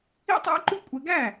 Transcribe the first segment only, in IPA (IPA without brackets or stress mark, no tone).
ḭ